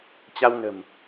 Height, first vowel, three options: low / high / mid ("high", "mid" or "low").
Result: low